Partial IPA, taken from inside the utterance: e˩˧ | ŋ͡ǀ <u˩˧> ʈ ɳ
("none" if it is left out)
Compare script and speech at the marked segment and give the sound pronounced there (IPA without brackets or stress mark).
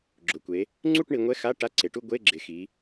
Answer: u˥˧